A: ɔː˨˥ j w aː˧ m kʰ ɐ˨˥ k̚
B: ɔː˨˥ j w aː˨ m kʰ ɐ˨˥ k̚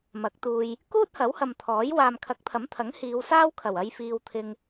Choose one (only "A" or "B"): B